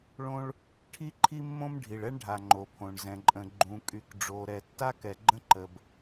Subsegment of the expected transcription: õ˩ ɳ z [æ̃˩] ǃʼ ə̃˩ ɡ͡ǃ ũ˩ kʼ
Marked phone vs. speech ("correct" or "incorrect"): incorrect